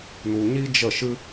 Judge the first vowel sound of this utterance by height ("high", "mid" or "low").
high